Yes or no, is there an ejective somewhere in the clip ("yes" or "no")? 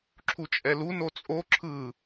yes